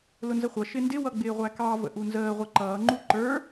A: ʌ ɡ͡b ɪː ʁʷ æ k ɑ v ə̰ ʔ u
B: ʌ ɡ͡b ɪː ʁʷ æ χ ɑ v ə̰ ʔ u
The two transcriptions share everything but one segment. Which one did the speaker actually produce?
A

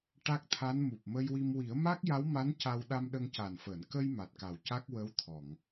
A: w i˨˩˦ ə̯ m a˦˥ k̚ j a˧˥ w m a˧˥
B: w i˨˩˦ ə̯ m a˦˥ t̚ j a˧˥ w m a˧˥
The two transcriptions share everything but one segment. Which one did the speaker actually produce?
A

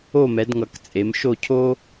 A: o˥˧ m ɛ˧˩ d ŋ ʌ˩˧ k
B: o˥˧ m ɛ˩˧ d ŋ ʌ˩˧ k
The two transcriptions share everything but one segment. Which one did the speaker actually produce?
B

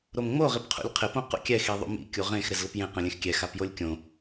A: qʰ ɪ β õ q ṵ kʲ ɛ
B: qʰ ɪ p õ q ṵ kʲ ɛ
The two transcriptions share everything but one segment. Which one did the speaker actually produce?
B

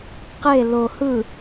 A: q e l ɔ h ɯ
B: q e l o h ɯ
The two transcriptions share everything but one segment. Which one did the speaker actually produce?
B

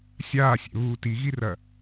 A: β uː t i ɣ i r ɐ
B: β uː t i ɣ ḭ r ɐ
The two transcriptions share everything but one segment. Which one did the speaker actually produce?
A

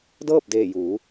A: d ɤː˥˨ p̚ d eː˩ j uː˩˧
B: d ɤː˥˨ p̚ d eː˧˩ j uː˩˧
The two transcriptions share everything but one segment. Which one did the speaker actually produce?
B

